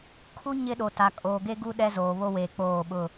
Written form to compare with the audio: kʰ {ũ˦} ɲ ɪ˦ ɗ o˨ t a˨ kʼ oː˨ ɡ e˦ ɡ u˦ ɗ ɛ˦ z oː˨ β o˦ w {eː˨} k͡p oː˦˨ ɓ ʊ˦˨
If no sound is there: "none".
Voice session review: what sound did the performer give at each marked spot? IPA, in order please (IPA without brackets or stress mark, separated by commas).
u˦, eː˨